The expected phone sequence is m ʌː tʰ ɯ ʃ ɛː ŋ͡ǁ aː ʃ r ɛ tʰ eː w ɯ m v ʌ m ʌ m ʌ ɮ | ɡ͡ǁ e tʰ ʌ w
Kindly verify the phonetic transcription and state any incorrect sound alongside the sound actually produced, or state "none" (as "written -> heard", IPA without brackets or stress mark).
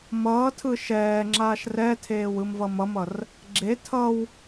ɮ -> r